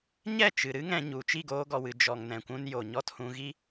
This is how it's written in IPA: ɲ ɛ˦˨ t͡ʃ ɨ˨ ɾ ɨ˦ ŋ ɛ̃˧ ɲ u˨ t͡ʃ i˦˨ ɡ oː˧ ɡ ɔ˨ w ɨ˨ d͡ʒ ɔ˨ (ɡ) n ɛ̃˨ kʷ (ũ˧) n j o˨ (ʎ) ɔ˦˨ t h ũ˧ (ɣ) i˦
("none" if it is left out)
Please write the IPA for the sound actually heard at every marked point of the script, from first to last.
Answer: ŋ, ũ˧, ɲ, ɣ

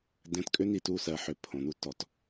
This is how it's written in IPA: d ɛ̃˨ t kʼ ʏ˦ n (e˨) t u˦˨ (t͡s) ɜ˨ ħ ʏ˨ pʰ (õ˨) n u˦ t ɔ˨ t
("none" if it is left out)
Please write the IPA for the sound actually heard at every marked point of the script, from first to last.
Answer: i˨, s, õ˨

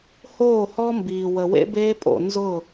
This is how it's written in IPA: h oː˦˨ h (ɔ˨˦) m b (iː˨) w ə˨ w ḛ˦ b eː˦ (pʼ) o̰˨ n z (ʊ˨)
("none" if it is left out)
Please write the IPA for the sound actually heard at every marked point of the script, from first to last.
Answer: ɔ˦, iː˨, pʼ, ʊ˦˨

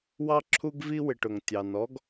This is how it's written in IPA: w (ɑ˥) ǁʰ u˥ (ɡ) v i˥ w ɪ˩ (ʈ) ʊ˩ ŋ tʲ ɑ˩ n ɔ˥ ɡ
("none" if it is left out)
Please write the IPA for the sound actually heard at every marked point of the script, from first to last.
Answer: ɑ˥, ɡ, ʈ

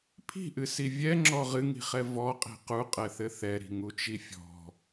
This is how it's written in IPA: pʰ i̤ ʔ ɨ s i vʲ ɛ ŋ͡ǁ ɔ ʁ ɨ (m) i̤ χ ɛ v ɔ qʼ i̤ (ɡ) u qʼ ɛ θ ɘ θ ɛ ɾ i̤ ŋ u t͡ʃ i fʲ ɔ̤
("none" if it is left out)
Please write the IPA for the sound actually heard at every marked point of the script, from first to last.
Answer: ŋ, q

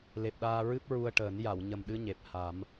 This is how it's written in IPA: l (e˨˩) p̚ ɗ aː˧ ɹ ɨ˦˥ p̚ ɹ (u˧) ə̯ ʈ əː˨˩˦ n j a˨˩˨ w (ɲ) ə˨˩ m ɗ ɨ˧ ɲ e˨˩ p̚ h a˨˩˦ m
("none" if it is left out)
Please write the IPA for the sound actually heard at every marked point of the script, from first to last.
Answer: e˨˩, u˧, ɲ

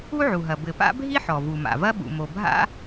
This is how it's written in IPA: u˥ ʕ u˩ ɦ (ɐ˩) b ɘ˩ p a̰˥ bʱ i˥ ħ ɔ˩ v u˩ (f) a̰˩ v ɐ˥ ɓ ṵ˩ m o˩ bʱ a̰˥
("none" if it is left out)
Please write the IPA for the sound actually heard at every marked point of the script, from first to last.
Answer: ɐ˩, m

